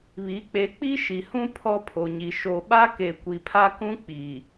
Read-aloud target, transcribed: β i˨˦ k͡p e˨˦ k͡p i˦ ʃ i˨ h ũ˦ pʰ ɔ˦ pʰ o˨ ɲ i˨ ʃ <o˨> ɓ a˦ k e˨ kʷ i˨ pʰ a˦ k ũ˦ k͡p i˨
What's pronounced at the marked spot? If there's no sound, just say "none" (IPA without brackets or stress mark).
o˨